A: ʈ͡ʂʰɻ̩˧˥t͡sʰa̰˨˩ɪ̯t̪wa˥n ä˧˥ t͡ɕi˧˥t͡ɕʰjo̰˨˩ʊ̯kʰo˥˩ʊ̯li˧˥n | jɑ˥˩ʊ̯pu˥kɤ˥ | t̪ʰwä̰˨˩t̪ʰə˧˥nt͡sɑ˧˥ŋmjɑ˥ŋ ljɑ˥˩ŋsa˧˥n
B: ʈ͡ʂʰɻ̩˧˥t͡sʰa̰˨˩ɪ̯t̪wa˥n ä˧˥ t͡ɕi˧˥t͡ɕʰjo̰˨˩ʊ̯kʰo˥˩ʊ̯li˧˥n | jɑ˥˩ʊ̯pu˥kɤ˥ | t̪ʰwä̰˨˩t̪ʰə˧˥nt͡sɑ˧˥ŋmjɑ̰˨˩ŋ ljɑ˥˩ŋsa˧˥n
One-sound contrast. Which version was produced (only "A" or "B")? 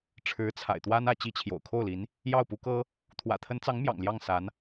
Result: B